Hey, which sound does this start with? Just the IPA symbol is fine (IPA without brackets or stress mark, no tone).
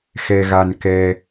x